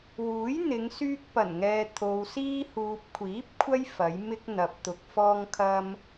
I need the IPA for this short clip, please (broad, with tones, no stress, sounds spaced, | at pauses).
w uː˨˥ j n̪ ɪ˨˧ ŋ s yː˧ k̚ p ɐ˨˩ n ŋ ɛː˨ t̪ʰ o˨ w s iː˧ h uː˨ p̚ kʷʰ iː˨˥ p̚ kʷʰ ɐ˥ j f ɐ˨˥ j m ɪ˥ k̚ n̪ ɐ˨ p̚ t̪ ʊ˨ k̚ f ɔː˧ ŋ kʰ ɐ˧ m